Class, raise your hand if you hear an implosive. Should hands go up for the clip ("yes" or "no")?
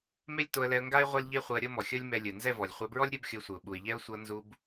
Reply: yes